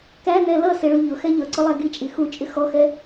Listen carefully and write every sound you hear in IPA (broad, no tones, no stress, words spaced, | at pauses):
kænɛ lʌsɪ ɭuʎʊxɛ ʎʌǀʊ lˠæɡit͡ʃʼi xut͡ʃʼɪ xɔxɛ